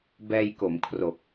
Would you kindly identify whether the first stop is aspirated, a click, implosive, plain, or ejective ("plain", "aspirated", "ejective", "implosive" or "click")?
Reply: plain